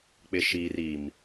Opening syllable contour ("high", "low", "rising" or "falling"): low